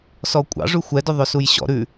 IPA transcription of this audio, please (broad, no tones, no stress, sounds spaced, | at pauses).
s ɔ kʷʼ ɑ̰ ʐ ʉ xʷ ɛ d ɵ ðˤ ɵ s u j ɕ ɔ̰ ɾ ʉ